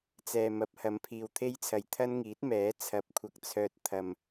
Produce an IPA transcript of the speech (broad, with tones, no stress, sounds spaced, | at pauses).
t͡s ɛː˨ m ɐ˨˥ p̚ h ɐ˨˧ m pʰ iː˨ w t̪ʰ e˥ j t͡sʰ ɐ˨ j t̪ʰ ɐ˥ n ŋ iː˨˥ t̚ m ɛː˨˥ t͡sʰ ɐ˨˥ p̚ kʷʰ ɐ˨ k̚ t͡sʰ œː˨ t̚ t̪ʰ ɐ˨ m